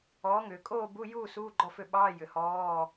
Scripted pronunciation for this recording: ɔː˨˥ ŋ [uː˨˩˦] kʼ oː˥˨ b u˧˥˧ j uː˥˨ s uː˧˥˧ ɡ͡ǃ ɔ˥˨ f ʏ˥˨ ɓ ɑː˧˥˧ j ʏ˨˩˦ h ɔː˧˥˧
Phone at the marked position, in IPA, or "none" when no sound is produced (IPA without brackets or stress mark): ʏː˨˩˦